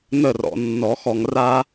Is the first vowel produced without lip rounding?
yes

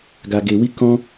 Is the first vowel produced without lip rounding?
yes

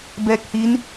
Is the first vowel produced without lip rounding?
yes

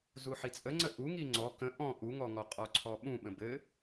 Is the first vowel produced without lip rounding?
no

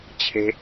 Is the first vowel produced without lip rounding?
yes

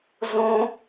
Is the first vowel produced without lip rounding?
no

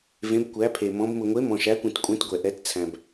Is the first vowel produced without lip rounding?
yes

